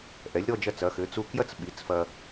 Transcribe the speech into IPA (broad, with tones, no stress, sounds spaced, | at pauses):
ʔ ɛ˩˧ lʲ ɾ ɔ˥˧ d͡ʒ ɐ˧ t͡s ɐ˩˧ x ɘ˩˧ t͡s u˧ k j ɐ˥ t͡s ɓ i˩˧ t͡s f ɐ˧